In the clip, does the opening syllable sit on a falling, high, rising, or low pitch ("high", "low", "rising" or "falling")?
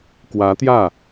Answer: rising